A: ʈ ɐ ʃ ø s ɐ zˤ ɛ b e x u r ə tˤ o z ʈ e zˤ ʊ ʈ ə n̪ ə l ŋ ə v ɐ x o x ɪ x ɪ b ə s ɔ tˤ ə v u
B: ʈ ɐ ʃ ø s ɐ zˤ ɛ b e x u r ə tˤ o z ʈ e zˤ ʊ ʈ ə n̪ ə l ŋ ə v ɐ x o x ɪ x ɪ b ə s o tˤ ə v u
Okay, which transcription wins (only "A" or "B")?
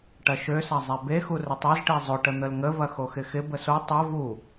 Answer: B